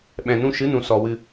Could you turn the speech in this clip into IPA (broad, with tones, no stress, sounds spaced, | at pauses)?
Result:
ɓ ɛ̃˨ n ũ˧ ʃ ɨ˨˦ n ũ˨ s ɔ˨ w ɨ˧